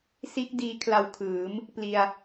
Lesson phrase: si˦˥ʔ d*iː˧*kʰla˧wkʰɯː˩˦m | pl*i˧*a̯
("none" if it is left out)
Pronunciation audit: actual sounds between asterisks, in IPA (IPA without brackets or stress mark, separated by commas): iː˧, i˧